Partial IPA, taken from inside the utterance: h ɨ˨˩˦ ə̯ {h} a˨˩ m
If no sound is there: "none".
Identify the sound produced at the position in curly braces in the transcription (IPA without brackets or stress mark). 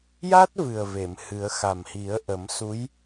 x